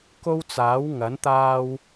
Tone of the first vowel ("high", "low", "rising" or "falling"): high